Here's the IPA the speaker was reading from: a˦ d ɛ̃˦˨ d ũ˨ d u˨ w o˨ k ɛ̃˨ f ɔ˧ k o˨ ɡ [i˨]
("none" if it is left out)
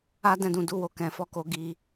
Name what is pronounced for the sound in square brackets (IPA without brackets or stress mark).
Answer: i˨